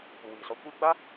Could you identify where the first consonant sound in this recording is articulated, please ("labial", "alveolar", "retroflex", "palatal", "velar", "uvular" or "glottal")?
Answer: labial